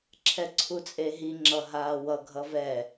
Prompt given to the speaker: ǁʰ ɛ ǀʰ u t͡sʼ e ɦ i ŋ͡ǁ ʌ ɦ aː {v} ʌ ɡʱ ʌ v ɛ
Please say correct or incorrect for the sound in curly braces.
incorrect